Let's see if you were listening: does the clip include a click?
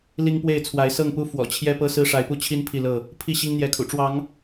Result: no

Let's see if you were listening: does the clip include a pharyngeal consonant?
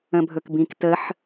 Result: yes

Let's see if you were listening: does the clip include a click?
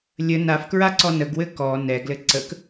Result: yes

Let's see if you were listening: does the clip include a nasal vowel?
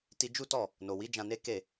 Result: yes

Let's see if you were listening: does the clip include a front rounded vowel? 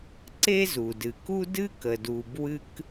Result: no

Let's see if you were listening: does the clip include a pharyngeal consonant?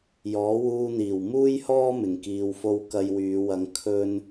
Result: no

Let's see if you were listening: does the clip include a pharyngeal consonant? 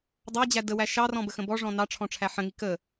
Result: yes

